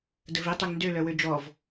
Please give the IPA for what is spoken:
d ə v i tˤ ø ŋ n d ø l œ w ø d͡ʒ ɔ v

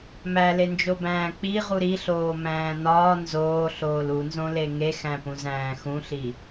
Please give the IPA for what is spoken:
m æ l e n d͡ʒ o b æ̃ː k͡p i ʁ u ɾ i ɬ oː m æ̃ː n ɒː n z oː ɬ oː l u n z õ l e ŋ e x æ̃ p ũ z æ̃ː x ũ ɬ i

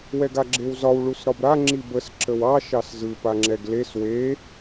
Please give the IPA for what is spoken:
w ɛ ɡ a ɡ͡ǁ e w z ɒ w ɭ u s ɾ ɒ b ɾ a ŋ͡ǁ i b ə s ǁ ə w ɑ ʃ ɑ s z ɯ p a ŋ͡ǁ ɛ ɡ l e s w e

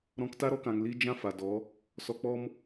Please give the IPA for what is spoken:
ɾ ɔ̃˧ k t a˦ ɾ ɔ˧ k ã˨ ŋ l i˧ d͡ʒ ã˦ f a˨ d ɔ˨˦ | s ɔ˧ k͡p ɔ˦ m

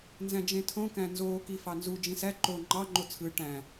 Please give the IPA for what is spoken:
n z æ̃ d͡ʒ ẽ tʰ õ k æ̃ n z oː k i f ɑ n z u d͡ʒ ĩ s æ ǃ o ŋ͡ǃ ɑ ŋ͡ǃ o t͡sʰ ɯ ʈ æ̃

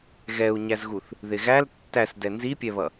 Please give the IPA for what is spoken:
ɣ ɛ u̯ ɲ æ z ɣ u θ | ð ɪ ɣ æ l tː æ s d ɛ n z i pʲ ɛ β ʌ

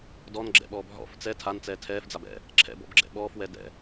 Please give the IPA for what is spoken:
d ɔ n ɡ͡ǁ ɛ̰ ɓ ɔː b ɦ ɔ̰ f t͡s ɛ tʰ a n t͡s ɛː tʰ ɛː f d͡z a b ɛ̰ | ǁʰ ɛ̰ b ɔ̰ b ɡ͡ǁ ɛ̰ ɓ ɔː f w ɛ d ɛ̰

